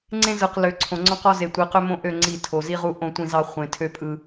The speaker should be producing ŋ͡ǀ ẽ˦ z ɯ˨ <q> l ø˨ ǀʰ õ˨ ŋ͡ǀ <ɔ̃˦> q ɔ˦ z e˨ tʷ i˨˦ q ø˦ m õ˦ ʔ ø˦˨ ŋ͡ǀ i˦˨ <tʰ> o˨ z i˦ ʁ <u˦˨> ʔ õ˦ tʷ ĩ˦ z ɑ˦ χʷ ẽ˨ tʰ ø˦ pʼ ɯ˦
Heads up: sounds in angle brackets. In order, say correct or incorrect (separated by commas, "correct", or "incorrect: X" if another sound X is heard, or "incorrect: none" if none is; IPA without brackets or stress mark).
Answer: correct, correct, correct, incorrect: u˦